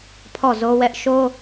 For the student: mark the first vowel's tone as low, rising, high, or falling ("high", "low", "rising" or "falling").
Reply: falling